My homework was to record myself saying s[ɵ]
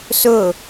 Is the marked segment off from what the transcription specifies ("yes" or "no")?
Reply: no